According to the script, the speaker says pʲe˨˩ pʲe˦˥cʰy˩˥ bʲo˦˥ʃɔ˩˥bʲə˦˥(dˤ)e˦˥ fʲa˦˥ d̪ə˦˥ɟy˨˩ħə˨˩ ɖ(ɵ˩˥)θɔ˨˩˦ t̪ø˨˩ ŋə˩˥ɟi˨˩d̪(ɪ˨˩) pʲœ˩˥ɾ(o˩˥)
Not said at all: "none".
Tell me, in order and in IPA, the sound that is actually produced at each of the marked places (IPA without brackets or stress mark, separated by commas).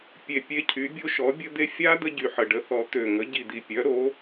d̪, ə˩˥, i˨˩, o˩˥